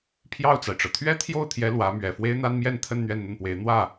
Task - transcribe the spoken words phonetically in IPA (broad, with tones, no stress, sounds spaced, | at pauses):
pʰ j ɑ˥˩ ʊ̯ t͡s a˩ ɪ̯ ʈ͡ʂ ɤ˩ t̪ʰ ɥ ɛ˥ t̪ʰ j o˥˩ ʊ̯ t̪ʰ j ɛ˧˥ l w ä˧˥ m ɥ ɛ˨˩ f w e˥ ɪ̯ n̪ a˥ n m j ɛ˥˧ n t̪ʰ ə˥˧ n n̪ ɥ ɛ˥˧ n n̪ ə˥˩ n p w e˧˥ ɪ̯ n̪ w ä˥˩